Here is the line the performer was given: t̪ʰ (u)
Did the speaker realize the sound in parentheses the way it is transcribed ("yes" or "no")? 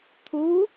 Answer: yes